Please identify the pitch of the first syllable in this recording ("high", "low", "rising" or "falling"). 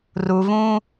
low